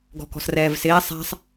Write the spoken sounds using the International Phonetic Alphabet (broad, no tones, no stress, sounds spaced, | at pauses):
ɡ ɔ̤ k ɔ̤ s r ɛː v s ɪː sˤ a̤ sˤ